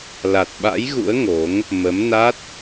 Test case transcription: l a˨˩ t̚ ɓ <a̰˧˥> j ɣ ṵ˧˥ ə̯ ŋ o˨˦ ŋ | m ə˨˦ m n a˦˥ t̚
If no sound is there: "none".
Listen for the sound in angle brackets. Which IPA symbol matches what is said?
a̰˧˥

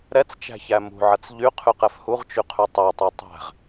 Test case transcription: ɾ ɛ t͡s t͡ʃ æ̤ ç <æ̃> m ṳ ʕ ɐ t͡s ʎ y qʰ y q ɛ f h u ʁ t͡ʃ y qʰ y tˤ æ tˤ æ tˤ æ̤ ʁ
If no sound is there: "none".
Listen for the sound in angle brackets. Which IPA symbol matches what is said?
æ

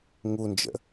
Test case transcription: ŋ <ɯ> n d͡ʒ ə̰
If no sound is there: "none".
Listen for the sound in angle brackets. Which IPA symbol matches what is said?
u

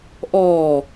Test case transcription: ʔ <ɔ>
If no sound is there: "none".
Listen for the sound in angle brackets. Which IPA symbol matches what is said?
ɔː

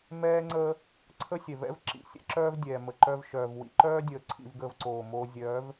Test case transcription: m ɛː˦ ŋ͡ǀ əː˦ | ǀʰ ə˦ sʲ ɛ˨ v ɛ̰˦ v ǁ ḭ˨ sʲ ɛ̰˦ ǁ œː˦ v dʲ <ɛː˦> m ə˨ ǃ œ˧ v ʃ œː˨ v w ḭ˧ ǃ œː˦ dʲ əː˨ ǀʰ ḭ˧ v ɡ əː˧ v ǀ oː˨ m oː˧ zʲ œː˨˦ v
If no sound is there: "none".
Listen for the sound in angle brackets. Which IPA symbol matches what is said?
ɛː˨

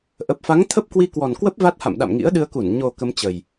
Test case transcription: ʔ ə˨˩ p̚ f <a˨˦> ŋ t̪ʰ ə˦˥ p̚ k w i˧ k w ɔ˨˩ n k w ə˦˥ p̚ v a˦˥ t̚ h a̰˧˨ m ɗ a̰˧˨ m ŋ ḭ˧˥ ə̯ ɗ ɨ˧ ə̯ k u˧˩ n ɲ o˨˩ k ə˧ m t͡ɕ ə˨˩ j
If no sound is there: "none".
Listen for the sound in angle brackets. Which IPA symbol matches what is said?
a˨˦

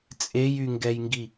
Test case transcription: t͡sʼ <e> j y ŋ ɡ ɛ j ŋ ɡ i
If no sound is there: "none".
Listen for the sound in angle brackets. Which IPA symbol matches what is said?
e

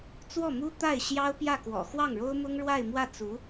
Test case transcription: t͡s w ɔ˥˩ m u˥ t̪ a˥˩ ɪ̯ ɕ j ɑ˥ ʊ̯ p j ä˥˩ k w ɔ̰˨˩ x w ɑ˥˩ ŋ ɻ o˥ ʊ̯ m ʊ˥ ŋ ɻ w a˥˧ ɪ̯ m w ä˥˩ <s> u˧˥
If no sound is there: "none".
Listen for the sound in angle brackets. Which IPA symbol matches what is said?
t͡s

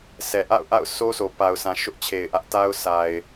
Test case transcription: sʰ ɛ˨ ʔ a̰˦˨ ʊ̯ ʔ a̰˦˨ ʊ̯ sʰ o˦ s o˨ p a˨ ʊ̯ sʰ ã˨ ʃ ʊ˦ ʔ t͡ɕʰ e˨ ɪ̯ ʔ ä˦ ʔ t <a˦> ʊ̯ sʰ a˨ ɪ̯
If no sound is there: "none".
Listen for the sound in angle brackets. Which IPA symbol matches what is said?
a˦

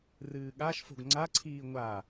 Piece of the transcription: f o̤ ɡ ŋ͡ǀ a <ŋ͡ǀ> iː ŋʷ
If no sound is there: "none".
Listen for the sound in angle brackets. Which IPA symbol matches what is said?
ǀʰ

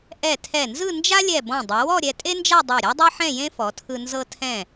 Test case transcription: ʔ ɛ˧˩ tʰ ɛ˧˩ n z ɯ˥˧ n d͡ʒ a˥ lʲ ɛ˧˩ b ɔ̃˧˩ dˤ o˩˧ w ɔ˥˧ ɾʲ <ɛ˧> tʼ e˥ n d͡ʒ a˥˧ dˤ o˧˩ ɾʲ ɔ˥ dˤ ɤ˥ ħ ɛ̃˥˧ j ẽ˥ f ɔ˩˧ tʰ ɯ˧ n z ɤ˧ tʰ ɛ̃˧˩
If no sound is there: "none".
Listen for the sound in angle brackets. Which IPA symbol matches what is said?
ɛ˧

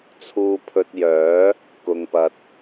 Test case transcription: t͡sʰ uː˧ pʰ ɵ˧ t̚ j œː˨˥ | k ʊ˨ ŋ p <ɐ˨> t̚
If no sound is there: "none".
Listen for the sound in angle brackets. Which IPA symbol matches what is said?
ɐ˨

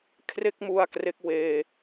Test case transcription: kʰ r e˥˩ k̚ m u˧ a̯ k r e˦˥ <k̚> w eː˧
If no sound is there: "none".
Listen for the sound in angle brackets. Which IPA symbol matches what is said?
k̚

